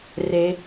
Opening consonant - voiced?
yes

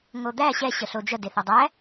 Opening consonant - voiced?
yes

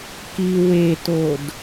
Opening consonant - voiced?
no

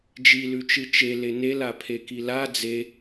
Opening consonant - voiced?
yes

